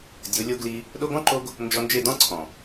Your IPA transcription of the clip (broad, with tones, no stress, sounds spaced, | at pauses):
dʲ o˨˦ lʲ o˧ ɡ l i˧ | ɗ o˧ ɡ ɔ̃˦ ǃ o˧ ɡ | n d͡ʒ ɔ˧ n d͡ʒ e˦˨ d ɔ̃˦ ǀʰ ɔ̃˨